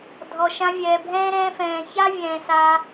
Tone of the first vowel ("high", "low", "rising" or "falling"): low